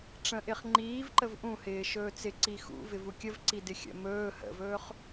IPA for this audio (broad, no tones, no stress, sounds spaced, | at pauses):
ʈ͡ʂ ə̃ ʔ ɪ χ ŋ͡ǃ iː v ǃ ə v ʔ ũ h ɪː ʃ ɵː t͡s ɪ ǀ i x ṵ v ɪ v u kʲ ə v ǀ i d ɪ xʲ ə̰ m ɵː h ə̰ v ɵː χ